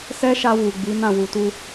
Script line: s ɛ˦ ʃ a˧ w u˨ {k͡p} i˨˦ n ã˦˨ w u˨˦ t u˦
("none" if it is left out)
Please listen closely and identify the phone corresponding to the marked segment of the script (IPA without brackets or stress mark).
ɡ͡b